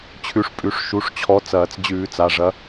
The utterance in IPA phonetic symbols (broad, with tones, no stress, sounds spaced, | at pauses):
t͡ɕʰ ʉ˨˥ ʂ pʼ ʉ˩˧˩ ʂ ʃ u˩˧˩ ʂ t͡ɕʰ ɔ˨˥ t͡s ɐː˨˩˦ t͡s d͡ʑ ʉː˨˩˦ t͡s a˩˧˩ ʐ ɐ˨˥